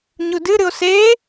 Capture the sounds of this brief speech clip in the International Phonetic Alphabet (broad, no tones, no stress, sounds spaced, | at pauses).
ɲ u d ɨ ɾ ɨ o̯ s e